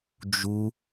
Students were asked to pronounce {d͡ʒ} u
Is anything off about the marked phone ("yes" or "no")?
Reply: no